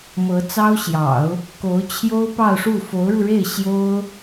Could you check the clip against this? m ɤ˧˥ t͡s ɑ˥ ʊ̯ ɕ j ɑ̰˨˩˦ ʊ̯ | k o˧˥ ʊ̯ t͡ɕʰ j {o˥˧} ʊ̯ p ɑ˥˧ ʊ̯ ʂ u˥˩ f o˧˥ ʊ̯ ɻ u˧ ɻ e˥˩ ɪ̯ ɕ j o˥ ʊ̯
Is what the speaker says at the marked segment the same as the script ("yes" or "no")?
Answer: no